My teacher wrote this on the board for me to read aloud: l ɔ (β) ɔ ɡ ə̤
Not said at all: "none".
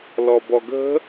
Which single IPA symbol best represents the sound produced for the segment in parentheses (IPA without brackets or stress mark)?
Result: b